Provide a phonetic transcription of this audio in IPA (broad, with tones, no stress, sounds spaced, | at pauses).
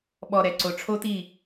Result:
ɓ ɔ˨ ɾ ɛ˨ ǀ o˨ ʈ͡ʂʰ o˦ t i˦˨